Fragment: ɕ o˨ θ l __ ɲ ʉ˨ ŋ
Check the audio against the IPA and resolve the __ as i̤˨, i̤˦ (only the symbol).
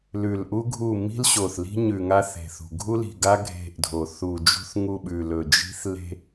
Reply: i̤˦